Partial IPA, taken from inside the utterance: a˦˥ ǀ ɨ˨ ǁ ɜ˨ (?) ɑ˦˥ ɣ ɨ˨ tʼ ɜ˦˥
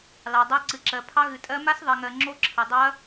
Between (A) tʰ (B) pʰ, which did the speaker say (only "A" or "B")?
B